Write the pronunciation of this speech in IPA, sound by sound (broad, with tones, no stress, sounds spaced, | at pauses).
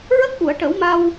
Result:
ɹ ə˦˥ k̚ ʔ u˨˩˨ ə̯ ʈ ə˨˩˦ w m a˧ w